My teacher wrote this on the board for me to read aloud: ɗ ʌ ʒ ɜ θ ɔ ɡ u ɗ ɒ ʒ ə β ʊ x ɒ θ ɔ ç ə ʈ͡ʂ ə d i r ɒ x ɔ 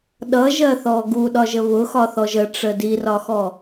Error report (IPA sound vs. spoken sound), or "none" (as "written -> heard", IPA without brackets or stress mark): ç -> ʒ